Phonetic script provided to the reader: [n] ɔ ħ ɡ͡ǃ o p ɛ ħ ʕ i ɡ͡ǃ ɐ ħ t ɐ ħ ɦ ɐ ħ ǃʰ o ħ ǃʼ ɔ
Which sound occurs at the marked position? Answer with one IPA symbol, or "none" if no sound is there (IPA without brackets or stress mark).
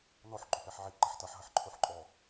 n